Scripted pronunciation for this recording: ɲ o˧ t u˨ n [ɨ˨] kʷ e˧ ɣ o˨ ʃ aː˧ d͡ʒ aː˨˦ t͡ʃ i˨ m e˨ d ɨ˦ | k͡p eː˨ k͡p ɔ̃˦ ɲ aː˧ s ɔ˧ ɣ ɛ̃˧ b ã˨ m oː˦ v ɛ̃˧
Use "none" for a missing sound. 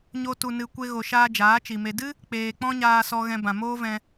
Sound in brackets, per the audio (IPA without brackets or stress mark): ɨ˨